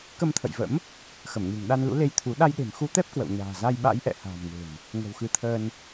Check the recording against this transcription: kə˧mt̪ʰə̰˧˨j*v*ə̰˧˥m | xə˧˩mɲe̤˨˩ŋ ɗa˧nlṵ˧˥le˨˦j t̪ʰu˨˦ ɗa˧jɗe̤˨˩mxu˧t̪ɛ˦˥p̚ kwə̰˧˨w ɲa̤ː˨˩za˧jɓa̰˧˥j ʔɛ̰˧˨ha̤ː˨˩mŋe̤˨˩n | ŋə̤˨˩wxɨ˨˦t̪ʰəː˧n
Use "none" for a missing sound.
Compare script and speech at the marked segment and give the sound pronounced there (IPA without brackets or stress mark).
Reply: v